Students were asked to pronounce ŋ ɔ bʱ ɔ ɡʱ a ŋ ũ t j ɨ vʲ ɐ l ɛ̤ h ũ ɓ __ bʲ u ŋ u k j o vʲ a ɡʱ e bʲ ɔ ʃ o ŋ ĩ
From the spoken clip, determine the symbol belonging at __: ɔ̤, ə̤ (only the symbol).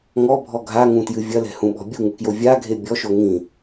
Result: ɔ̤